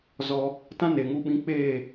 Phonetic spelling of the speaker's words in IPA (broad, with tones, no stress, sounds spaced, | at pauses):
z ɔ˧ | t ã˦ n e˨ ŋ u˧ ɓ ĩ˧ k͡p eː˦˨